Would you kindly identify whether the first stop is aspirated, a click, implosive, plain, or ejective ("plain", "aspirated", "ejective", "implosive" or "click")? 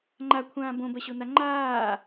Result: click